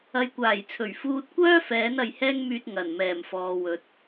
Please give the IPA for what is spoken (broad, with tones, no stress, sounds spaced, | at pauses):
ɐ˨˧ j kʷ aː˨˩ j t͡sʰ ɵ˨˩ ɥ f uː˧ t̚ kʷ œː˥ f ɛː˨˥ n ɐ˨˧ j h ɛː˥ ŋ m yː˧ t̚ ŋ ɐ˨˩ n m ɛː˨˩ m f ɔː˨ w ɵ˨˥ t̚